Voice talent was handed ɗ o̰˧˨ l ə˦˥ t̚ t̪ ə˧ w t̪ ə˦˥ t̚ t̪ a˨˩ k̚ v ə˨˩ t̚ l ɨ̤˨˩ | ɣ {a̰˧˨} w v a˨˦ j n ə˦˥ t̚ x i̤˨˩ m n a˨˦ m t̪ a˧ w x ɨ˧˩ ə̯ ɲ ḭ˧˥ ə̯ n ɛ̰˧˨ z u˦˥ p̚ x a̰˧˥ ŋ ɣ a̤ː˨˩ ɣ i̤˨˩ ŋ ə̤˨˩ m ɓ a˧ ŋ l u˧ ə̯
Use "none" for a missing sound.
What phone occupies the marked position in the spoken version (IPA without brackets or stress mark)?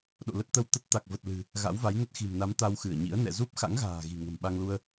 a̰˧˥